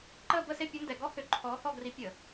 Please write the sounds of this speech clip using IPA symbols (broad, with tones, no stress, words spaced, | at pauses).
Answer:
ǃəː˥˧bə˥˧se˥˧ pʲɐ˧˥ndɛ˧˩˧ ɡɔ˧˥hʏ˧˩˧ ǃʰɔː˧˥hɔ˥˧ɡri˧˥ pʲə˧˩˧